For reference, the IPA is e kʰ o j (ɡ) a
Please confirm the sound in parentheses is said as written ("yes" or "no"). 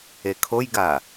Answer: yes